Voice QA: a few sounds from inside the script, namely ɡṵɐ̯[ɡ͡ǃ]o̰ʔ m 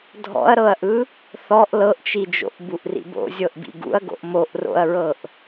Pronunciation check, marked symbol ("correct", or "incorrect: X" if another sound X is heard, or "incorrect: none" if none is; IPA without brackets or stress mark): incorrect: ɡ